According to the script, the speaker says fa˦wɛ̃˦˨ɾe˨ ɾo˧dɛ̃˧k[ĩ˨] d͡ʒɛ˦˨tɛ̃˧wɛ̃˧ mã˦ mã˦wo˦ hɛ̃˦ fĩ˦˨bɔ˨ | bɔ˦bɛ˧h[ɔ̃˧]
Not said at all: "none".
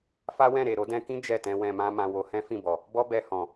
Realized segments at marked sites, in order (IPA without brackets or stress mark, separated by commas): ĩ˦, ɔ̃˨